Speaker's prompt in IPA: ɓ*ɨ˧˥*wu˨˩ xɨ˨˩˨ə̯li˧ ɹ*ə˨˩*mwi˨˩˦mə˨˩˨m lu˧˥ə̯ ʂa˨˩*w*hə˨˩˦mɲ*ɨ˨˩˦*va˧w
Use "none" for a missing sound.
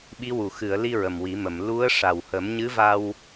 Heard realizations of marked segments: i˧˥, ə˨˩, w, ɨ˧˥

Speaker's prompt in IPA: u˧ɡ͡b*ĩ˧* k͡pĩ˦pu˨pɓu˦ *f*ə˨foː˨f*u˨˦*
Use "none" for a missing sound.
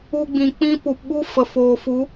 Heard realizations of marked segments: ĩ˨, f, u˨˦

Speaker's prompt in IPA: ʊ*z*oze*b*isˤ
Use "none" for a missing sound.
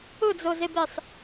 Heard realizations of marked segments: d͡z, b

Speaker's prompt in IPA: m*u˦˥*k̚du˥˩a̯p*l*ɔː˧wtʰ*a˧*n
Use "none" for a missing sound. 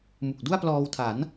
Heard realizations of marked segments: u˨˩, l, a˩˦

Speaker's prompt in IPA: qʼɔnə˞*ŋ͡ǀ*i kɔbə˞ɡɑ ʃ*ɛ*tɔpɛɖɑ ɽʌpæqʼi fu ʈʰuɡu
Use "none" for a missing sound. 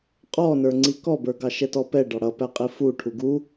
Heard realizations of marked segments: ŋ͡ǀ, ɛ

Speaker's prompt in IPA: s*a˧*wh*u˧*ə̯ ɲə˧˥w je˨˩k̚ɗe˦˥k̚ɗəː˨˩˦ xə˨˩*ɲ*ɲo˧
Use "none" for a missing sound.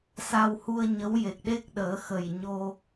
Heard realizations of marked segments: a˧, u˧, j

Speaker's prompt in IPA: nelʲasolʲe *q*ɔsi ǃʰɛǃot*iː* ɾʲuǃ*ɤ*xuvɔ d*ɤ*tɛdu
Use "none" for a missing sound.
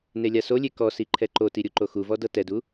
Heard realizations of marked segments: k, i, o, ɤ

